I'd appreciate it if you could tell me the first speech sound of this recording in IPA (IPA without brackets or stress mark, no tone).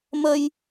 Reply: m